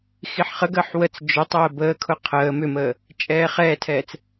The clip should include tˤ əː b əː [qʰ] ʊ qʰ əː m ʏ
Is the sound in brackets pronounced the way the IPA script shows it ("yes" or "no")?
no